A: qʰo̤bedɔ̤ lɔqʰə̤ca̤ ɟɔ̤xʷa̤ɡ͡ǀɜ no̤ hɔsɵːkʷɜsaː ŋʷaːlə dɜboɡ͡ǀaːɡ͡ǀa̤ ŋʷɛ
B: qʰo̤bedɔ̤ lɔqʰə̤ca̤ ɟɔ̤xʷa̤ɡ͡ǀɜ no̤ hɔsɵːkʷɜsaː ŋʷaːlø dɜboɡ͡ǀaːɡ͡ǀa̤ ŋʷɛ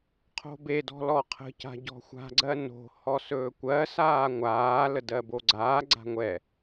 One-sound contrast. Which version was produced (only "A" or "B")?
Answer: A